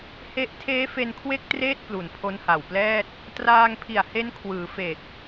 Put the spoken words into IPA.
h e˦˥ ʔ tʰ eː˦˥ f e˧ n kʰ w e˥˩ k̚ t r eː˥˩ t̚ p l u˨˩ n pʰ o˦˥ n h a˨˩ w p l ɛː˥˩ t̚ | t r aː˧ ŋ pʰ i˨˩ a̯ h e˦˥ n kʰ w ɯː˩˦ f e˨˩ k̚

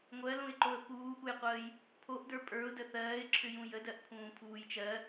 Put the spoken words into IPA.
ŋʷ ɜ l ũ ɪ̯ ǃ o ə̯ p uː ʔ u j qʷ əː j | pʰ o ʔ d ə˞ pʼ ə˞ ʊ̯ d ə θ ɜː ɪ̯ ǁʰ ʏ j ũ j ə d ɜ ʔ pʰ ũː pʰ uː j t͡ʃ ɜ

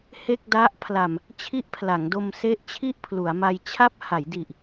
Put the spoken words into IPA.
h e˥˩ k̚ d a˦˥ ʔ pʰ l a˨˩ m | t͡ɕʰ i˦˥ ʔ pʰ l a˩˦ ŋ d o˧ m s e˦˥ ʔ t͡ɕʰ i˥˩ ʔ pʰ l u˩˦ a̯ m a˧ j t͡ɕʰ a˦˥ p̚ h a˩˦ j d i˨˩ ʔ

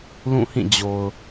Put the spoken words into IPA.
l ũ˦˨ h ĩ˦˨ d͡ʑ o˨ ʊ̯

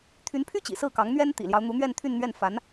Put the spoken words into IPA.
t̪ʰ y˧˥ n pʰ y˥ t͡ɕ ḭ˨˩ s ɹ̩˥˩ k ɑ˧˥ ŋ n̪ ɥ ɛ˥ n t̪ ḭ˨˩ l j ɑ˦ ʊ̯ n̪ u˧˥ n̪ ɥ ɛ˥˧ n t̪ʰ y˥˧ n n̪ ɥ ɛ˥˩ n f a˧˥ n

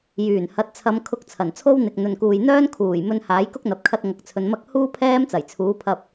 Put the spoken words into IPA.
j yː˨˩ n h ɐ˨˥ t̚ t͡sʰ ɐ˨˧ m kʰ ʊ˧ k̚ t͡sʰ ɐ˨˩ n t͡sʰ o˥ w n̪ ɪ˨ k̚ n̪ ɵ˨ n k uː˨ j n̪ œː˥ n kʰ uː˨˩ j m ɵ˧ n h aː˨˥ j k ʊ˥ k̚ n̪ ɐ˧ p̚ kʰ ɐ˥ t̚ ŋ ɐ˧ k̚ t͡sʰ ɵ˧ n m ɐ˥ k̚ h uː˥ pʰ ɛː˥ m t͡s ɐ˨˩ j t͡sʰ uː˨˥ pʰ ɐ˧ p̚

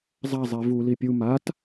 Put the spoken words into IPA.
zˤ a zˤ i v u l i pʲ u m a t

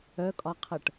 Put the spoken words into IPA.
œ kʼ ɒ qʰ ɤ ʈ

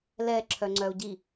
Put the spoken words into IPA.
l ɛ ǁʰ œ ŋ͡ǀ œ u̯ ɟ i

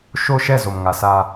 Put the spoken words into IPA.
ʃ o˦ ʃ ɛ˦˨ z o˨ m ŋ a˨ s a˦

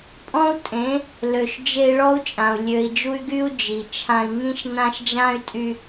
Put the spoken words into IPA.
pʼ ɔ̃˦ u̯ tʼ ẽ˨˦ | l ø˨ ʃ d͡ʒ e˦ i̯ ɭ ɔ˦ u̯ t͡ʃʼ ã˨ u̯ lʲ ø˨ i̯ d͡ʒ u˦ y̯ ɡ y˦ u̯ d͡ʒ i˨ t͡ʃʰ ã˦ i̯ ŋ ĩ˦ ʃ n ã˦ ʃ d͡ʒ ã˦ y̯ tʼ y˦

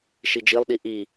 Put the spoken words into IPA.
ʃ i d͡ʒ i lˠ ɗ i ʔ i

